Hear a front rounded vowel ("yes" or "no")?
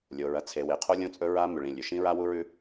no